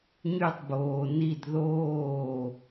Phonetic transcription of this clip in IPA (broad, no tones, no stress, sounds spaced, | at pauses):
ɲ y tˤ b oː n i d ð oː